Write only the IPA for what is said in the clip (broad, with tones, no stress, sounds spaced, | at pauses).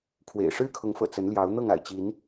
kʰ w ḛ˨˩ ɪ̯ ʂ ɻ̩˦ kʰ ʊ˨˦ ŋ f ɤ̰˨˩ t͡s ə˨˦ n l j ɑ˨˦ ʊ̯ n̪ ɤ˥˨ ŋ a̰˨˩ ɪ̯ t͡ɕ i˨˦ n